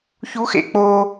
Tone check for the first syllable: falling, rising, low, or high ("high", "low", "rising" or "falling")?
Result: rising